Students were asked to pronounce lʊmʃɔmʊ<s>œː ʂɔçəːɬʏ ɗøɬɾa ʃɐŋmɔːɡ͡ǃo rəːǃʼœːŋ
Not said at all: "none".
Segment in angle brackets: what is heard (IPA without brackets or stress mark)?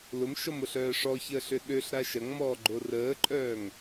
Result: ɬ